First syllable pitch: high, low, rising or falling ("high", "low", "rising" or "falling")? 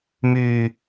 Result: high